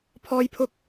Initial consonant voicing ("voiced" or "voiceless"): voiceless